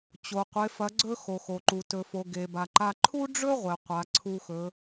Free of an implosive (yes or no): yes